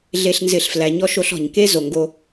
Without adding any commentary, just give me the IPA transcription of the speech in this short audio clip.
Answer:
ɮ e˨ ɬ n z ɪ˨ ɬ f l æ˨˦ ɲ ɔ˦ ʃ o˦ ɬ ɔ̤˨ ɲ k e˦ z o˨ ŋ ɡ o˦

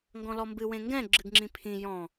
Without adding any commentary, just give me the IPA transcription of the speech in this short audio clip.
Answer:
ŋ ɡ ɔ̃ l ɔ m b ɨ w ẽ ŋ ɡ ɛ̃ ɡ͡ǁ ɨ ɡ ŋ͡ǁ ĩ pʰ ĩ j ɔ̃

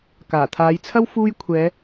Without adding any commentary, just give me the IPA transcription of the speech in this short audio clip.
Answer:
k aː˨˩ t̪ʰ aː˨˧ j t͡sʰ ɐ˥ w f uː˥ j kʷʰ ɛː˨˧

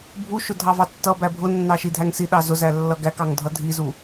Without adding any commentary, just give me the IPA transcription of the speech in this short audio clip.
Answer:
bʱ u ʃ ʊ dʱ ɑ v ɑ tː ʌ b æ bʱ ʊ nː ɑ ʃ i dʱ æ ŋ s i ɗ ɑ z ʊ z æ lː ʌ ɡ æ k ɑ ŋ dʱ ʌ dʱ i z u

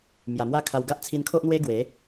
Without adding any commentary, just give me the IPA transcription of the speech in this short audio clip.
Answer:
m j a˨˩ m w a˦ kʰ a˧ w ɡ a˦ ʔ t͡sʰ i˧ n kʰ o˦ ʔ n̪ w e˦ ɡ w e˨˦

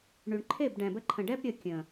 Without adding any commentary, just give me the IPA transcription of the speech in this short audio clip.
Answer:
ɳ y˨ ɳ ǃʰ e˦˨ b ɖ ɛ̃˨ b ə˧ ǃʰ ə̃˨ ɖ ɛ˦ b ɾʲ ə˧ kʲ ə̃˨

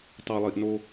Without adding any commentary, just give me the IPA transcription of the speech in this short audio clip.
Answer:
tˤ a˨ lˠ i˨ ʔ n o˦

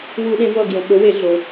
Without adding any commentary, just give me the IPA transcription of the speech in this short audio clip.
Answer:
w u˧˩˧ ɗ ẽ˨˦ v ʌ˦˨ ɡ j õ˩ ɓ o˨˦ w e˧˩˧ ɮ o˩

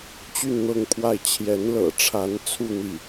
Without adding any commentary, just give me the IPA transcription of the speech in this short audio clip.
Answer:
t͡ɕ y˥˧ n n̪ ɤ˥˧ ŋ pʰ w a˥˩ ɪ̯ t͡ɕʰ j ɛ˧˥ n l ɤ̰˨˩ ʈ͡ʂʰ a˧˥ n t͡sʰ u˥˧ n̪ i˥˩

